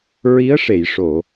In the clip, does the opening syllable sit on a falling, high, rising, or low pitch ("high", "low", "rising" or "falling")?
rising